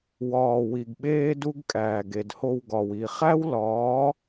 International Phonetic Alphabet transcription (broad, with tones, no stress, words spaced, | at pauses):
wɒː˨ wi˨ɡɓeː˦du˦ɡ kʼæː˨ɡe˨dho˧wɡɒ˨w i˨ χæ˦wlɒː˨˦